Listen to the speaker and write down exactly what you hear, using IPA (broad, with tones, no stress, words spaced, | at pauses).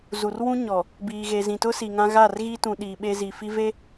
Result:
zu˨rwũ˦ ɲɔ˨ | biː˨ɣe˨zĩ˨ tʊ˦ si˨ŋã˦ ɣa˦˨rɣi˦tũ˨ ɗiː˨ɓe˦zi˨ fi˦ve˦